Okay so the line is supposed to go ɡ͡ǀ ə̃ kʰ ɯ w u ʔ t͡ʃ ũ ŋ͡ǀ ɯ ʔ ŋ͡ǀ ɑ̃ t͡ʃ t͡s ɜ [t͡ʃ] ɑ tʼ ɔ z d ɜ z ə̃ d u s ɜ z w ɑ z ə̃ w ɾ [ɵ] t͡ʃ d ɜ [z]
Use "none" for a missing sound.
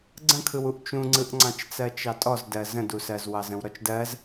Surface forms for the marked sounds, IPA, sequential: t͡ʃ, ɔ, z

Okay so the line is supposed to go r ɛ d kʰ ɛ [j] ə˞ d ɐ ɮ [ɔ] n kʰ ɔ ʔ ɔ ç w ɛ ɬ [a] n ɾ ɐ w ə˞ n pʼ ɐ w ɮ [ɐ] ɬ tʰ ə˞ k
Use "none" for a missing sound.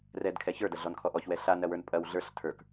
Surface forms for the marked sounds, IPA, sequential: ç, ɔ, a, ə˞

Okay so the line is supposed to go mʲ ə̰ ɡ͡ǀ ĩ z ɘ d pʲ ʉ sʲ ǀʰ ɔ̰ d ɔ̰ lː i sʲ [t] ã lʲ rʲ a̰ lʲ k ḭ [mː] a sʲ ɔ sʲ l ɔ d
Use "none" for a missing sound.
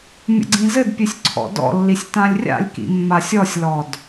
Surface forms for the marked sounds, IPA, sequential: t, mː

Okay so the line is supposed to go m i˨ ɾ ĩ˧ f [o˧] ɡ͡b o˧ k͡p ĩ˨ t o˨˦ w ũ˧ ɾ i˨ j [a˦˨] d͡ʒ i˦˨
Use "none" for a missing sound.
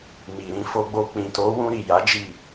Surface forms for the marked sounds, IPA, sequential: o˧, a˨˦

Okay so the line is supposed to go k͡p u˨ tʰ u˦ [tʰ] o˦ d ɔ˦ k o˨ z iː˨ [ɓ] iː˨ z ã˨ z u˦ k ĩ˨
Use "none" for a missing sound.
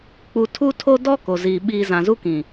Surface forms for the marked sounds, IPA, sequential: tʰ, ɓ

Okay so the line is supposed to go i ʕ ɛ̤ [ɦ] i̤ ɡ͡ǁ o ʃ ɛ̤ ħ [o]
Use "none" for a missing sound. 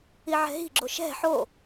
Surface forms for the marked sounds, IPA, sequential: ɦ, o

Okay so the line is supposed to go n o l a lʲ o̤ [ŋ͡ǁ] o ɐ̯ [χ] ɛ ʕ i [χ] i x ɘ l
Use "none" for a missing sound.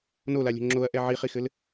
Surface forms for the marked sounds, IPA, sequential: ŋ͡ǁ, ʔ, χ

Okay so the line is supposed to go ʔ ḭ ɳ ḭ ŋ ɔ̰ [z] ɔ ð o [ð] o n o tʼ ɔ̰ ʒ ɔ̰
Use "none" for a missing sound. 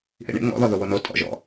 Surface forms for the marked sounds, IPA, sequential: ð, w

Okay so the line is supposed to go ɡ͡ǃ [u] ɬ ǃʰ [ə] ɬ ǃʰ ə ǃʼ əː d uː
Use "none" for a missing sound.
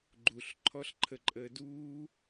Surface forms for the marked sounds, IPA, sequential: u, ɔ

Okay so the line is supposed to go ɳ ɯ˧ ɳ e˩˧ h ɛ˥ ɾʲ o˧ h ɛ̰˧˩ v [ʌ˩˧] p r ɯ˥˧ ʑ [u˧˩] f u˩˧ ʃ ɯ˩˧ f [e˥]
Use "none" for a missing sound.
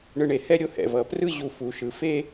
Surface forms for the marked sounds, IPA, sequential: ʌ˩˧, u˧˩, e˥

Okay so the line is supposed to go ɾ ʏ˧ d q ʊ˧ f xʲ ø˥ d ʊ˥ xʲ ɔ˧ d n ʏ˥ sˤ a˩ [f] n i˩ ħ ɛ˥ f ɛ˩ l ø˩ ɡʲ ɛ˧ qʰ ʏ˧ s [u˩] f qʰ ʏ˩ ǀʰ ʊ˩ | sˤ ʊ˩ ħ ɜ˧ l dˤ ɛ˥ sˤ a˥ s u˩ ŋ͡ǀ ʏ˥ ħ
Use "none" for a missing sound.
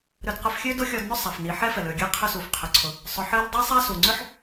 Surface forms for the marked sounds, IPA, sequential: f, u˩

